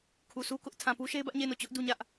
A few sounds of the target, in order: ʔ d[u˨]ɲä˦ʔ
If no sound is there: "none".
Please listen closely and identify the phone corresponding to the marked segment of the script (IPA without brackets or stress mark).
u˦